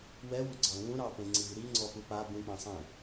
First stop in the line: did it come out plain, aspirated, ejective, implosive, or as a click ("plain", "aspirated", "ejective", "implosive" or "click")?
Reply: click